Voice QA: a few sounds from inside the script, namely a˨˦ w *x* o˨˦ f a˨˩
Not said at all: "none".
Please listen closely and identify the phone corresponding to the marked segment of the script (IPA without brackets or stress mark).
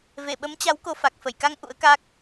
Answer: k